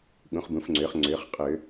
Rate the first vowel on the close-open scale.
close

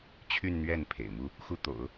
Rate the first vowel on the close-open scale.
close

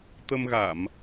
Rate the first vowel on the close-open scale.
mid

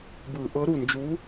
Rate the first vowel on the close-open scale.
close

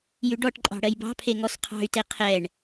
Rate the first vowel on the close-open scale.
close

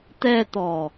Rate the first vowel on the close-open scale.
mid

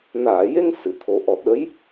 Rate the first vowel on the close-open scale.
open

